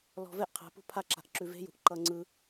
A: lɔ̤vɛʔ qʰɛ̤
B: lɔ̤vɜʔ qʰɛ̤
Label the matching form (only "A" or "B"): A